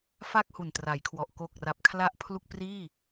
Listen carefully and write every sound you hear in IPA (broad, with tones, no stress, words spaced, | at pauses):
fa˥˩k̚hu˨˩ntra˩˦jkʰwɔ˨˩ʔ ko˨˩k̚ra˨˩p̚ kʰla˥˩ʔpʰlu˥˩k̚ priː˥˩